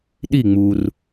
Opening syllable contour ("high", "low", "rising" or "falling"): falling